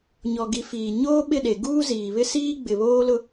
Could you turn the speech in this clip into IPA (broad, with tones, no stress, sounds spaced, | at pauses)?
ɲ ɔ˨ ɡ i˨˦ f iː˨ ɲ oː˦ ɓ ɪ˦˨ ɗ e˨ ɡ uː˦ z iː˨ β ɪ˦ s iː˦ ɡ͡b ɪ˨ β oː˦ l ʊ˦